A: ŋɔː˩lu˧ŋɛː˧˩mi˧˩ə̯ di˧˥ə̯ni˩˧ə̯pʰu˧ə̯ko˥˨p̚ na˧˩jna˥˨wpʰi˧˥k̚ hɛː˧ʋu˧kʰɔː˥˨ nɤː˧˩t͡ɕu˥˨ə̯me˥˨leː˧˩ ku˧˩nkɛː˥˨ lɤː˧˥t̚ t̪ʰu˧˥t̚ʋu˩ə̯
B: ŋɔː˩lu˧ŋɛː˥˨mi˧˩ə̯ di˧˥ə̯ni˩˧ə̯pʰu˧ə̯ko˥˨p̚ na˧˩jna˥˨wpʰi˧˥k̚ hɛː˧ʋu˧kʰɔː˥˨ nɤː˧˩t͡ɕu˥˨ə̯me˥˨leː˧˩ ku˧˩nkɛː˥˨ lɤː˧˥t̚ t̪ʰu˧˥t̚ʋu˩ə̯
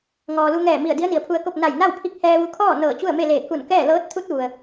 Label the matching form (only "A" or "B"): A